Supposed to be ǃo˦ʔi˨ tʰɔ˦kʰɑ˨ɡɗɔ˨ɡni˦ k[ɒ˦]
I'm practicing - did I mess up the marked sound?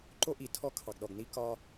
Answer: no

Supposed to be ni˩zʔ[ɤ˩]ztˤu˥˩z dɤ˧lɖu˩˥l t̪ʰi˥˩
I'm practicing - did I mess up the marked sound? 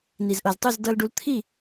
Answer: no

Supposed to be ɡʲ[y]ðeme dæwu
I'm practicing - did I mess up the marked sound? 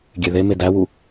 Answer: yes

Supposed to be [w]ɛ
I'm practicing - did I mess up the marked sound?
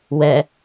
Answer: no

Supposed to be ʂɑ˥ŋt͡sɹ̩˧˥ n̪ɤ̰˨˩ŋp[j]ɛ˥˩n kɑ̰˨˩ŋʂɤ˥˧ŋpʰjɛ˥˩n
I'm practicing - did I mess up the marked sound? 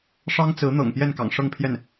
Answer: no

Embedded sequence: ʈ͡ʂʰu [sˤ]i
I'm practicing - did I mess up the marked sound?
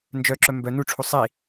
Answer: no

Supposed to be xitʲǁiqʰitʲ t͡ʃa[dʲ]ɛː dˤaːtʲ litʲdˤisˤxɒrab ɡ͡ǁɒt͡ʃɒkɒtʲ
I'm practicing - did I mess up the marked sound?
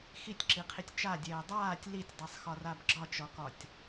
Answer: no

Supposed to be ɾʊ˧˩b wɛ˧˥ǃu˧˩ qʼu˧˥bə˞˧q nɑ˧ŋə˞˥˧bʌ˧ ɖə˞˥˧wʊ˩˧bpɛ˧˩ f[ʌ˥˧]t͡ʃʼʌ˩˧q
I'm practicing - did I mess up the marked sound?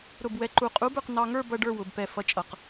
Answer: yes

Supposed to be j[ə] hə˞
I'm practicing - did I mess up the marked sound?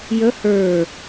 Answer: no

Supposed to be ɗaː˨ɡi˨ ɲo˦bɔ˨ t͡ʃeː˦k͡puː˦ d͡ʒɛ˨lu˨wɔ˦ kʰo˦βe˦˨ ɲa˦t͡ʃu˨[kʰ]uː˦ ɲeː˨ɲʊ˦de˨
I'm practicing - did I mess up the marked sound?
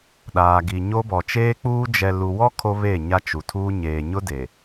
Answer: yes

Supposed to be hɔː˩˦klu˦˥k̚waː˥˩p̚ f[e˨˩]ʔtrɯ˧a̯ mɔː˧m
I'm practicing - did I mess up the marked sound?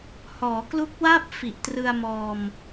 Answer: yes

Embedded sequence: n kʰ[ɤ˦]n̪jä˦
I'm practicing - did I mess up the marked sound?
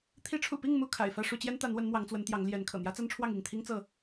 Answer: yes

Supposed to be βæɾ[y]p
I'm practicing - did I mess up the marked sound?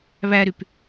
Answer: no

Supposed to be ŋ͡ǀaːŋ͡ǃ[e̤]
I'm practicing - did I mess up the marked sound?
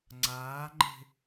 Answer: no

